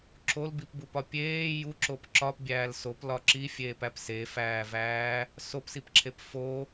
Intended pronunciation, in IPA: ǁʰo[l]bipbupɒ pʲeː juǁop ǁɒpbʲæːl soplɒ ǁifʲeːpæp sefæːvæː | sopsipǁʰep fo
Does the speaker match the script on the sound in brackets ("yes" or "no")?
yes